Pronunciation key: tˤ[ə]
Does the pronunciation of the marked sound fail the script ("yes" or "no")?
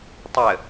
no